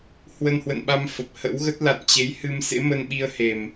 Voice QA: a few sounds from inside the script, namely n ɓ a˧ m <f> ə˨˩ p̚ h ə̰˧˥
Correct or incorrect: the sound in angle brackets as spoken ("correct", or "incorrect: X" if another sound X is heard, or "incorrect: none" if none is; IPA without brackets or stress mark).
correct